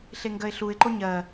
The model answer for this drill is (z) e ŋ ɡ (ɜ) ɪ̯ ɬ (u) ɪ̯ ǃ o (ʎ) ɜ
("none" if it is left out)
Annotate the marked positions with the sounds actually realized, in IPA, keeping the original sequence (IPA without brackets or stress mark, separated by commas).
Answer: ɬ, ɜ, u, ɲ